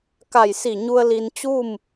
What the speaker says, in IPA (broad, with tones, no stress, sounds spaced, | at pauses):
k a˧˩ j s i˧˩ ɲ u˧ ə̯ l i˧ n t͡ɕ u˥˨ m